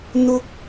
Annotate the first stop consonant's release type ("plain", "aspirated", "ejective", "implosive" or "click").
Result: plain